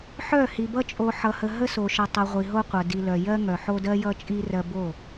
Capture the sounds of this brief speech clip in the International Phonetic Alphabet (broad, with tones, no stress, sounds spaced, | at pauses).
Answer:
ħ œ˦˨ h i˨ b ʌ˦ t͡ʃʼ o˨ ħ ʌ˨ h ə˨ ɦ ə˦ s o˨ ʃ ʌ˨ tˤ ʌ˨ ʁʷ i˨ ɦ o˦ qʷ ʌ˨ d i˨ l œ˨ j ɜ˦ ŋ œ˨ ħ o˦ d ɜ˦ j ʌ˦ t͡ʃʼ i˦ r ɜ˦ b o˦˨